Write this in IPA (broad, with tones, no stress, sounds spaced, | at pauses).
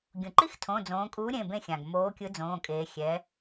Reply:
ɡʲ ũ˩ ǃ i˦ x tʰ õ˩˧˩ d͡z õː˩˧ kʼ uː˨˥ ɾʲ ẽ˩˧˩ b ẽ˦˨ xʲ ã˩ ɡ m oː˨˥ kʲ ɯ˨˥ d͡z õː˩˧˩ kʼ eː˩˧ xʲ ɛ˩˧